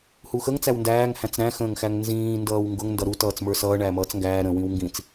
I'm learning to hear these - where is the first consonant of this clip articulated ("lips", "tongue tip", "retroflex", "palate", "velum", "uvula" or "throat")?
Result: throat